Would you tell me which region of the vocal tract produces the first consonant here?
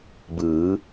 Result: lips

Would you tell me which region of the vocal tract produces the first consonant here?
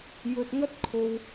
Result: palate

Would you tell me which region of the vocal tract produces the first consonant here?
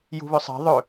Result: palate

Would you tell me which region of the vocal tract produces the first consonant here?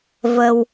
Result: lips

